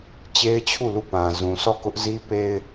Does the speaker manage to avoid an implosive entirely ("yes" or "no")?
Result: yes